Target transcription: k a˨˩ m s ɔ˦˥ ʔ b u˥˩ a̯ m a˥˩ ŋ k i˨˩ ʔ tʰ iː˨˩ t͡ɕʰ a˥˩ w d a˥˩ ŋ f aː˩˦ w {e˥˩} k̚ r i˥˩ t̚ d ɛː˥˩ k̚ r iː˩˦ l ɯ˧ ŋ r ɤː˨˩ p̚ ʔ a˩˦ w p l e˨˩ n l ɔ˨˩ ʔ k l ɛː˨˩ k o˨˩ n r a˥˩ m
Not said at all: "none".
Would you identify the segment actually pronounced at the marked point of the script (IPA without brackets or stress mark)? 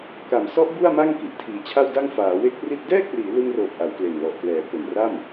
e˦˥